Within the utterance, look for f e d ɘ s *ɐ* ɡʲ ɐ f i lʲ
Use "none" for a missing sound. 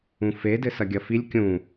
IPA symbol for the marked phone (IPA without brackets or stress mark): ɐ